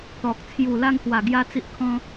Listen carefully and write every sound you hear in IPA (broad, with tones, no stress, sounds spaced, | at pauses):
t̪ ɔ˨ k̚ t͡sʰ j u˨˩ l a˧ ŋ h w a˨˩ ɡ j a˧ t͡s i˦ ʔ kʰ ɔ̃˦